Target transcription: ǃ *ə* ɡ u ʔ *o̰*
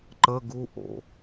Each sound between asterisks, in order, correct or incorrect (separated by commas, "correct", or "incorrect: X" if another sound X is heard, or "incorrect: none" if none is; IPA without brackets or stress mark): correct, correct